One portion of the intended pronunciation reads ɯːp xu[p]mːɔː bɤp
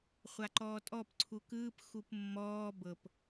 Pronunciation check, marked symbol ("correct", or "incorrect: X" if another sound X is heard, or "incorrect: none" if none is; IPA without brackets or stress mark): correct